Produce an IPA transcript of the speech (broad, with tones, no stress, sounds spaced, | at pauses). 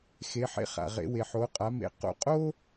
x e˩˧ ħ ḛ˧ χ a̰˩ ʁ ḛ˩˧ w e˩ ħ o˩˧ qʼ a˩˧ m ḛ˩˧ q o̰˧ qʼ o˥